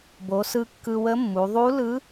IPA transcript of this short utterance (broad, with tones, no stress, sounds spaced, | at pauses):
b o˩˧ s ɯ˧ kː ɯ˧ w ə˧˥ mː u˩˧ ðˤ u˧˥ l ɯ˧˥